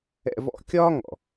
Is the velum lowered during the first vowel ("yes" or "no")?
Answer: no